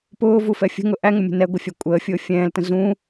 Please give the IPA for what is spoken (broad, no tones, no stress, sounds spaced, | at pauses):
p ʊː v u f ɛ fʲ ə̤ ŋ ʊ ʔ æ ŋ ʊ mʲ ə̤ n ɛ ɡʷ ɪ fʲ æ kʷʼ əː fʲ ʊː fʲ ɛ̃ː l t ə̃ z ũ